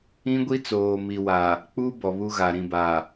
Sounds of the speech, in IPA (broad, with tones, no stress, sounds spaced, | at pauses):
ĩ˦ ɡʷ i˦ t͡s oː˨ m i˨ w a˨ | k͡p u˦ b ɔ˨ β u˦ ɣ a˨ ɾ ĩ˨ b a˨